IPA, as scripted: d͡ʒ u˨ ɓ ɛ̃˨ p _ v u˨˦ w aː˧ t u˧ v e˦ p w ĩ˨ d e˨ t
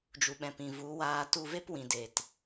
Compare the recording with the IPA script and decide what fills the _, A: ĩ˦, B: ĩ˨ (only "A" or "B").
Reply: B